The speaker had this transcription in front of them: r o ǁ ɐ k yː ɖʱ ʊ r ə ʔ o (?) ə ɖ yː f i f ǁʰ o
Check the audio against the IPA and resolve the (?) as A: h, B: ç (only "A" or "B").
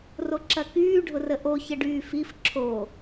B